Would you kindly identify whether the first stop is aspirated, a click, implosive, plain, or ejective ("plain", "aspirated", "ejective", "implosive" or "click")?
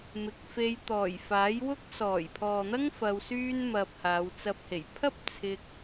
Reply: plain